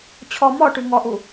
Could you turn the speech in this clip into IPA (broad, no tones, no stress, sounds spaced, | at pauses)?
t͡ɕʰ ɔ m ɔ ʈ ʉ ŋ ɔ ʔ u